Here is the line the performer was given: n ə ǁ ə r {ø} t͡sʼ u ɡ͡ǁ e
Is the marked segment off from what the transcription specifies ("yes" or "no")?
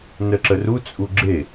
yes